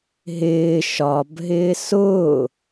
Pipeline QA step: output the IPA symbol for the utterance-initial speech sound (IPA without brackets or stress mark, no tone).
ɦ